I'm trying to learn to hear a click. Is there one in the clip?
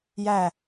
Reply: no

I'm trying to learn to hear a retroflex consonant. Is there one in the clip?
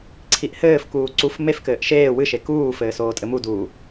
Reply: no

